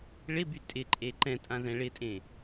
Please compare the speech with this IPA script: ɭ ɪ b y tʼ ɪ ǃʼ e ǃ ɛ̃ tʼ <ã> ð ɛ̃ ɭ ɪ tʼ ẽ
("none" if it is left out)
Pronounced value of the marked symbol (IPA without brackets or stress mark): ã